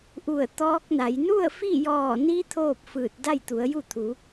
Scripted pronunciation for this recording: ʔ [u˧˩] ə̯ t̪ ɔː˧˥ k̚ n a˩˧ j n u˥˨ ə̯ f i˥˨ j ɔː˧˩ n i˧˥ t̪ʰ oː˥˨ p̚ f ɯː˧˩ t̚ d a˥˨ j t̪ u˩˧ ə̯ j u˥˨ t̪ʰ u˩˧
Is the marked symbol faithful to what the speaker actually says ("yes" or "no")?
yes